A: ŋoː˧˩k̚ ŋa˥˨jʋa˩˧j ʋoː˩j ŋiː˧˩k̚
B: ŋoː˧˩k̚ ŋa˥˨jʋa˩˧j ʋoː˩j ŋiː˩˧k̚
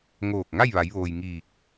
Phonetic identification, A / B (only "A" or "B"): A